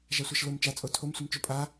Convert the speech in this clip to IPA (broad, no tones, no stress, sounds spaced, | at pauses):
ʒ a sʷ a ʃ l o m t͡ʃ a t͡sʼ o tʰ o m sʷ ə m t͡ʃ o pʼ a